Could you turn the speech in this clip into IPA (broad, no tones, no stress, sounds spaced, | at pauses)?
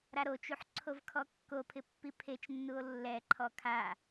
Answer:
ɾ a ɾ o t͡ʃ u ħ ǀʰ o v kʰ ɔ kː o pʰ ɪ pː i pʰ e t͡ʃ nː u o̯ lː ɛ ǃʰ ɔ kʰ a